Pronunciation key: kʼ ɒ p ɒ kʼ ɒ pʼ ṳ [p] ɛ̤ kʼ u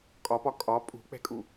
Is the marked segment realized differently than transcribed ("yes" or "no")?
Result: yes